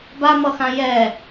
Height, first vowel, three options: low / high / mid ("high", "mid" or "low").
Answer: low